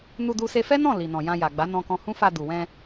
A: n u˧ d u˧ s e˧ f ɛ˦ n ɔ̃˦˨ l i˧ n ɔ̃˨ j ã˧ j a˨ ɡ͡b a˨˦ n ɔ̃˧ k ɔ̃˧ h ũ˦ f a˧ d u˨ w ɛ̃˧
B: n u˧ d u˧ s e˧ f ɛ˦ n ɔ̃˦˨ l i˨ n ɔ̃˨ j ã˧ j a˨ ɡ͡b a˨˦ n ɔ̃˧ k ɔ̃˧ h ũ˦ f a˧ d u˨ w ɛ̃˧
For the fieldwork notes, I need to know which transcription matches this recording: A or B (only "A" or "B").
B